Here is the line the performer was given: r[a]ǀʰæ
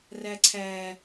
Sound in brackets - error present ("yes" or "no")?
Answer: yes